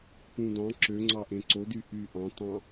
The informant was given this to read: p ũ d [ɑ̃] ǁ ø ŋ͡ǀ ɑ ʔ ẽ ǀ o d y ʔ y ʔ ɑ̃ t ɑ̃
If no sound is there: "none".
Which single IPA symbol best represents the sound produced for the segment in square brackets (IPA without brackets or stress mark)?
ɑ̃